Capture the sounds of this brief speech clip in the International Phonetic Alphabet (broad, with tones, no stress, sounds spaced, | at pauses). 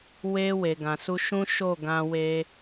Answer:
w e˧ w e˨ ɡ ã˨ s u˧ ʃ ũ˦ ʃ o˦˨ ɡ ã˧ w e˧